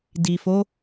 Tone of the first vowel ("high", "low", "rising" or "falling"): low